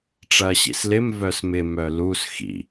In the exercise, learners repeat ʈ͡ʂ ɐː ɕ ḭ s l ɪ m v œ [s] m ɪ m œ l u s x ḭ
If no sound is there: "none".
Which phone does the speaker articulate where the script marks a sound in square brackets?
s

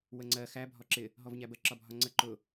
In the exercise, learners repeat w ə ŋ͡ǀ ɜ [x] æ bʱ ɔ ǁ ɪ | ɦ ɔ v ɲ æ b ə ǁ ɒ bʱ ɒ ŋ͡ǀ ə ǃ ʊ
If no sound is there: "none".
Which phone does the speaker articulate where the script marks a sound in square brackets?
x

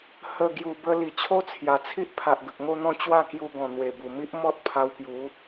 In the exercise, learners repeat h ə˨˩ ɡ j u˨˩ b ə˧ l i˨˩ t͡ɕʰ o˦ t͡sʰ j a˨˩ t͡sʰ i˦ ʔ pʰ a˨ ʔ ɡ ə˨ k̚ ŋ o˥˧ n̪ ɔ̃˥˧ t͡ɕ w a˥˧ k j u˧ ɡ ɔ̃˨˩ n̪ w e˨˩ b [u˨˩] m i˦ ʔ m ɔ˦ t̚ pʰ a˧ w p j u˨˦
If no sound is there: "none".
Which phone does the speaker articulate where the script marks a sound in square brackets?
u˨˩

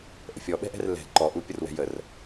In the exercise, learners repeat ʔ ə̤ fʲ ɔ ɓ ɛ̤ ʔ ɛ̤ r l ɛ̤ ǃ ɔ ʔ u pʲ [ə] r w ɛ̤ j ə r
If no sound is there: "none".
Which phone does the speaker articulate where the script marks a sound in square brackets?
ə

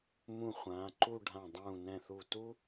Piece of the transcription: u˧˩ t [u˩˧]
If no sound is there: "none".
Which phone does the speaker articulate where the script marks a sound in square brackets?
u˥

